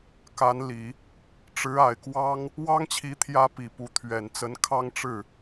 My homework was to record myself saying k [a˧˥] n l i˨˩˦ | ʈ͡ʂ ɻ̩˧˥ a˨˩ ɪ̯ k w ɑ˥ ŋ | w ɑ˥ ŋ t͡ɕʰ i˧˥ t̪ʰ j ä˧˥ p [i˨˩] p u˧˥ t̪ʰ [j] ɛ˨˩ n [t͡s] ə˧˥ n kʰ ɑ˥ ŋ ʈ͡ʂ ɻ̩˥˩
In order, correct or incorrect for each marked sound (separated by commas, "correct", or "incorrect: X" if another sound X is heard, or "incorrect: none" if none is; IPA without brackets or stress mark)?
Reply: correct, correct, incorrect: ɥ, correct